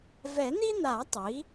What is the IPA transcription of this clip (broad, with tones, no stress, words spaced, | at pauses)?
vɛ˨˩˦n̪i˥n̪a˨˩˦ tˤi˩˥